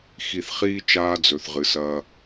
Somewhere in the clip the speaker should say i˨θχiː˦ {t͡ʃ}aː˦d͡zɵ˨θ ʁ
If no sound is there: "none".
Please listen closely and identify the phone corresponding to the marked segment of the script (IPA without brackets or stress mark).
t͡ʃ